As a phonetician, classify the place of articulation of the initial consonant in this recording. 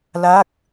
alveolar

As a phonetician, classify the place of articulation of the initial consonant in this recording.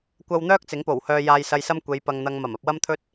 velar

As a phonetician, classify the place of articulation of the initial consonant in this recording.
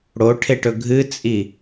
retroflex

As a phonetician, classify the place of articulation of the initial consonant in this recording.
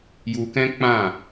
palatal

